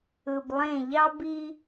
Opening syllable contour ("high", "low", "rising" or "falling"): low